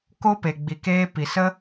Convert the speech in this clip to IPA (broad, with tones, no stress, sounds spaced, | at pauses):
k o˦ p e˨ ɡ͡b i˨ k eː˧ p i˨ s ə˦